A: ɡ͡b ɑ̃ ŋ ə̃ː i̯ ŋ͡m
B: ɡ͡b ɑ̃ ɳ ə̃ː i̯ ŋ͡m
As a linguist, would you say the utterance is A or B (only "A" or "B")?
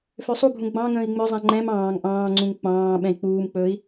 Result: A